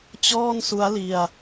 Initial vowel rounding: rounded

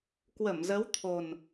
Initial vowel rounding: unrounded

